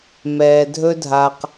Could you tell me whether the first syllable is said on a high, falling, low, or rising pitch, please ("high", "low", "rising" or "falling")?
low